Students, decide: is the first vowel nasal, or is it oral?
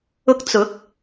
oral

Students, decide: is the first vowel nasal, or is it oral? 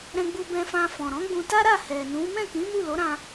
nasal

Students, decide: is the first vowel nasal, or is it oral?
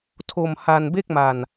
oral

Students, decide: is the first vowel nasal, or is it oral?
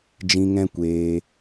nasal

